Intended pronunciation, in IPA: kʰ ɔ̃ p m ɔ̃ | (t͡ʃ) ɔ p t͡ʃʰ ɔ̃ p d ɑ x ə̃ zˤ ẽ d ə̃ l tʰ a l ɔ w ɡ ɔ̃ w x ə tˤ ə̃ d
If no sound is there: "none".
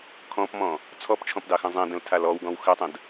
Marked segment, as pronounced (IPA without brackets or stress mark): t͡sʰ